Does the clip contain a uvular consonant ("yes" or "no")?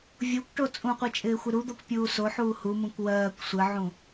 yes